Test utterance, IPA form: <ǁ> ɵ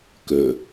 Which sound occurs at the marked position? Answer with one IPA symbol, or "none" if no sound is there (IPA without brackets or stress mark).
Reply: k